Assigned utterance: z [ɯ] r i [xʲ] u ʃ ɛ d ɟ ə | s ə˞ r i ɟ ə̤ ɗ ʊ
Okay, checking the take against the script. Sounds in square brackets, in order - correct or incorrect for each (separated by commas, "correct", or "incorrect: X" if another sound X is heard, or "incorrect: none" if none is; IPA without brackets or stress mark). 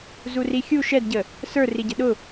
incorrect: u, correct